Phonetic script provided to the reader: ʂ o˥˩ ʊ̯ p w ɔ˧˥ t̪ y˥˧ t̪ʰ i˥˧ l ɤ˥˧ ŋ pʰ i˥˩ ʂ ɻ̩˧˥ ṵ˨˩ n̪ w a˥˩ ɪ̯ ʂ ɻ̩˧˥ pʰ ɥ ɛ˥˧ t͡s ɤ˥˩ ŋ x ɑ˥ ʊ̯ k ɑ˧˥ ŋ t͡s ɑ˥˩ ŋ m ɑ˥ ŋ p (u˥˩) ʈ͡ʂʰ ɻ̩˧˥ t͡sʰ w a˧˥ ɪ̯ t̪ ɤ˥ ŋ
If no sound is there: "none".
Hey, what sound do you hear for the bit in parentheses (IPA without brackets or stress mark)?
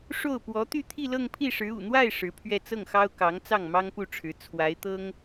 u˥˩